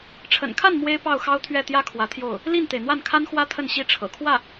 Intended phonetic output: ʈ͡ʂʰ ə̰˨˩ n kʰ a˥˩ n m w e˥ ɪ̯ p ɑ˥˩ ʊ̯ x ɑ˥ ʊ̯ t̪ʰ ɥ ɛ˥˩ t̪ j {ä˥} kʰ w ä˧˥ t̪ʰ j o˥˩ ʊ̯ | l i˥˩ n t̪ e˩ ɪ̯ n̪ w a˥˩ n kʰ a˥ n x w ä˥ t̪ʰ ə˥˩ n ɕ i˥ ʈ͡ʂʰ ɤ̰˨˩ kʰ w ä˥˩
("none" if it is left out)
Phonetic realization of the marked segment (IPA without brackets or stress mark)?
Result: ä˥